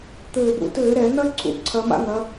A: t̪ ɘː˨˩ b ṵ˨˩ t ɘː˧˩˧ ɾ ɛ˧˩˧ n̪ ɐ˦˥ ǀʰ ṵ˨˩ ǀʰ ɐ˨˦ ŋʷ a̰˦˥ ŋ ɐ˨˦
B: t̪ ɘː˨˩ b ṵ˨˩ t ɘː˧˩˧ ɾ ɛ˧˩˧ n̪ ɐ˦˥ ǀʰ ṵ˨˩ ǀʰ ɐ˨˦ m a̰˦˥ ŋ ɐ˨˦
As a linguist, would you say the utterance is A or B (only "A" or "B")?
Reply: B